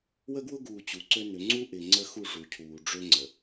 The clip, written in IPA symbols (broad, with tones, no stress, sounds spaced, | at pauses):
w ə˦ ɡ w ʊ˦ ɡ uː˨ t͡ɕ u˨ ǀ ø˦ n ʏ˨˦ ŋ͡ǀ u˦ ʔ ɪ˨ ŋ͡ǀ ə˦ x u˦˨ ʐ u˨ cʰ uː˨ ɖ͡ʐ ø˦ ŋ͡ǀ ə˨